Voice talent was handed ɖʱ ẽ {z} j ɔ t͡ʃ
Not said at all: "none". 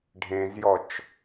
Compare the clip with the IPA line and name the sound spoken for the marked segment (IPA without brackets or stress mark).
z